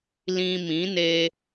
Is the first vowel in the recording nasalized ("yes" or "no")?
yes